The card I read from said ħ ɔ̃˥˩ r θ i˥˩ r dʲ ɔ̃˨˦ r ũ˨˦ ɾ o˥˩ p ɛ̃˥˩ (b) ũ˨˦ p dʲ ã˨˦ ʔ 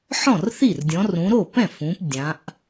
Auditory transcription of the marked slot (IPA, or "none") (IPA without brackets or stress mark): f